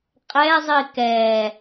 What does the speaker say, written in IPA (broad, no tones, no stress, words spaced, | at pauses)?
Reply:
qʼɛzˤi kɛ